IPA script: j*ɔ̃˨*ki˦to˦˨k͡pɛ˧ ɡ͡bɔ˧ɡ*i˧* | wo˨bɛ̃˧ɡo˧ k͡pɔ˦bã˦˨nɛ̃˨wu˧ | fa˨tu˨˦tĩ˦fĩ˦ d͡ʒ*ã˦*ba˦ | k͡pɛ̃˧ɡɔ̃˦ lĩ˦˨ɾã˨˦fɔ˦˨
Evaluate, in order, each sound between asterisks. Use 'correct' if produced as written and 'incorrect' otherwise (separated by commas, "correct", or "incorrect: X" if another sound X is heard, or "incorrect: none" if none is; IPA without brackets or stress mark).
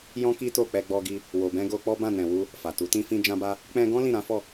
incorrect: ɔ̃˦, correct, correct